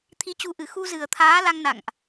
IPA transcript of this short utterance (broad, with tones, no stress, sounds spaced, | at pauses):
t̪ʰ i˨˦ t͡ɕ u˨˦ ʔ ɨ˨˩ x u˧ z ɨ˨˩ ə̯ t̪ʰ aː˨˦ l a˧ ŋ n a̰˧˨ ŋ ʔ